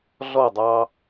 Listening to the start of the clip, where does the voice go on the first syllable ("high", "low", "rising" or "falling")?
falling